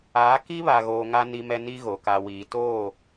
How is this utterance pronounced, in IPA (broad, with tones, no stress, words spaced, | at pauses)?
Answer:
aː˨˦ ki˦βa˨ɣoː˨ ŋa˨ ni˨mɛ˨ ni˦ɣo˨ ka˨wiː˨ toː˦˨